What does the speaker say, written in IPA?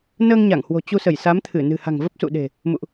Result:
nəː˧ŋɲa˧˩ŋhwo̤˨˩ t͡ɕu˧sə˧˩j sa˨˦mt̪ʰɨ˧˩ nɨ̤˨˩ha̤˨˩ŋvə˦˥p̚ sṵ˧˨ɗe̤˨˩ | mṵ˧˨ʔ

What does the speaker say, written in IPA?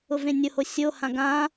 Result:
ʊvẽnʲʊho sʲohã ɡã

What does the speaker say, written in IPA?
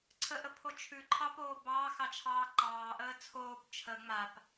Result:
ǀʰəʔəpʰo t͡ʃʰʉǃʰɑpoː bɑːxɑt͡ʃʰɑː ǃɑːʔəː t͡sʰoːp t͡ʃʰə ŋ͡map

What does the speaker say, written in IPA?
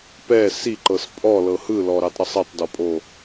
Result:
pɛ siǃɤs pʼɔlɤ hɯlɔɾɛtˤɾɤsˤ etˤdɔpʼo

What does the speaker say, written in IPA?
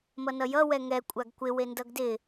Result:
mʌnʌjʌ wɛŋɛ kʷʼaɡkʷɪ wendʌɡdɪ

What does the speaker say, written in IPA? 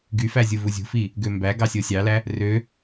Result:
ɡyfæzʲu vuzʲṳfi | ɡømbæ ɡɑsʲosʲɑlæ | rø

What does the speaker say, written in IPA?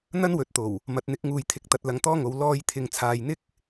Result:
n̪ɐ˥nwɵ˨˥t̚t̪o˨˩w | mɐ˨˥t̚n̪ɪ˨˥k̚ŋuː˨jt̪ʰɪ˨k̚ t̪ɐ˧t̚lɐ˧ŋt̪ɔː˥ŋo˨˧w lɔː˧jt̪ʰɪ˨ŋt͡sʰaː˨jn̪ɪ˥k̚

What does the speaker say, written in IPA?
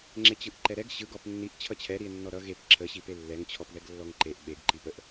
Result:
ŋ͡ǁet͡ɕɯʔǃɛɾɛɡ ɕɯ ɡɔpnːiʔ t͡ɕʰʌt͡ɕʰɛɾie̯nːɔ ɾʌ ɣep ǁʰəɕi pelːɛŋ t͡ɕʰɔpðɛɡlːɔŋǃeʔ ɓeɡǃipəʔ

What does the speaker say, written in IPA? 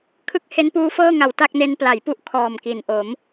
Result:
kʰɯ˦˥k̚ he˦˥npuː˦˥fɤː˥˩ŋa˨˩w ta˥˩k̚ne˦˥n pla˩˦jpu˦˥ʔ kʰɔː˨˩mki˩˦n ʔo˩˦m

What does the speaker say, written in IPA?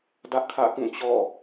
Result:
dä˦ʔkʰä̰˦˨kũ˦˨ t͡ɕɔ̰˦˨

